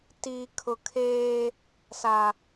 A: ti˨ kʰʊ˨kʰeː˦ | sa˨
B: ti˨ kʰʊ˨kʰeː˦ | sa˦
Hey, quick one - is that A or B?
A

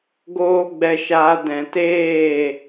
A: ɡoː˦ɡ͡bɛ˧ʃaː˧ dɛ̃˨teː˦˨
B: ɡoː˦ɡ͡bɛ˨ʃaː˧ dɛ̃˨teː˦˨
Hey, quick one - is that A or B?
A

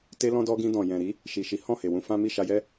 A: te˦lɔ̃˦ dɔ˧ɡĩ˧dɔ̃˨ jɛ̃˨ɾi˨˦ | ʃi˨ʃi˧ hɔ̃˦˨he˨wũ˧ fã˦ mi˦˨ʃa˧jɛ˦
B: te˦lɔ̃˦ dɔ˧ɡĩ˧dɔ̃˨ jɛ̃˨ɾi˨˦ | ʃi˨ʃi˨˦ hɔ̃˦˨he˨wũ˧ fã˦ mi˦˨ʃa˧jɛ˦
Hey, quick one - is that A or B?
B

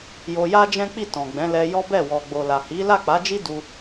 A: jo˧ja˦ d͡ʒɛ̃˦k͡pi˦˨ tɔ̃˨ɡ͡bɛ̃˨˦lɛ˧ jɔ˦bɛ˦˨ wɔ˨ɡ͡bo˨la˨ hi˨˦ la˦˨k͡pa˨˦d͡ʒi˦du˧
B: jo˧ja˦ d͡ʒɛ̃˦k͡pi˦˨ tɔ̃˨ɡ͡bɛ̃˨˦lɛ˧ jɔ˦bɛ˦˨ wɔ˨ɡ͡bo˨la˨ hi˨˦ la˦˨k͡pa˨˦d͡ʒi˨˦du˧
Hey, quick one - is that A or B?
A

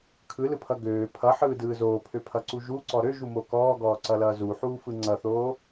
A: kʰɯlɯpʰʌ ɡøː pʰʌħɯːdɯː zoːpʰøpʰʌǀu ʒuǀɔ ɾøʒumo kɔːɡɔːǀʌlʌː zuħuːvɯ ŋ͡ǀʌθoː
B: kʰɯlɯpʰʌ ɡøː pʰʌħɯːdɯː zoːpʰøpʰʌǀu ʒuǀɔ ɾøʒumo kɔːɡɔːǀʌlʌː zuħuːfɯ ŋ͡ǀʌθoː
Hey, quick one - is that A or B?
B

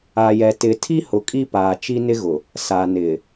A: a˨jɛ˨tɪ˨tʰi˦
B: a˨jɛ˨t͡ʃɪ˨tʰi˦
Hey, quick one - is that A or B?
A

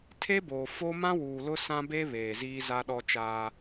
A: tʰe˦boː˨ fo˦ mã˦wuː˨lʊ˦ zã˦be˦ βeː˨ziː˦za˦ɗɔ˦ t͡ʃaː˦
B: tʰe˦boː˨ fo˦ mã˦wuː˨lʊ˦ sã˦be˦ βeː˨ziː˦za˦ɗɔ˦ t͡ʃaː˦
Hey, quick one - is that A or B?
B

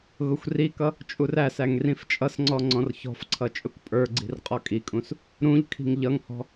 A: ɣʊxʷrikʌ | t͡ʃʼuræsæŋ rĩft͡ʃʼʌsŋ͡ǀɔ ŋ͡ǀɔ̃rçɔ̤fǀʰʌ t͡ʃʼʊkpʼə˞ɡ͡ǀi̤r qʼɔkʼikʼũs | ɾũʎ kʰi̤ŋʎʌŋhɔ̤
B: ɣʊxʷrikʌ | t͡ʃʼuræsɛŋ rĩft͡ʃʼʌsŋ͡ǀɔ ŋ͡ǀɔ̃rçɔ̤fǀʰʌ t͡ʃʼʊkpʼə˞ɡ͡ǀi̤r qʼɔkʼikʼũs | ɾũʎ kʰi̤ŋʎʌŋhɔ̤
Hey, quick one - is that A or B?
A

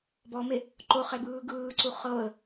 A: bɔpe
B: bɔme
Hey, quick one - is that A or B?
B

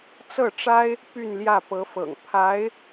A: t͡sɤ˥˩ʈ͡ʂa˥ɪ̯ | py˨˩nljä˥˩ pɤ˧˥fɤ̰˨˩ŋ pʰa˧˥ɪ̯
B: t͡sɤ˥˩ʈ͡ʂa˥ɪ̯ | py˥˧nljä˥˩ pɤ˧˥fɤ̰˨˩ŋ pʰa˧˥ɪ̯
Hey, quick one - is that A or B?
B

